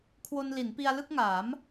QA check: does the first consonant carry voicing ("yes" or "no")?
no